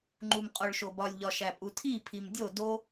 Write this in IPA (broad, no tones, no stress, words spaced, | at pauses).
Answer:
ŋ͡ǃumqʼoɭʃobɒlʲ ʎɒʃæpʼutʰi pʰimdʲo do